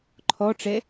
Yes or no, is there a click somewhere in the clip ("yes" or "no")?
yes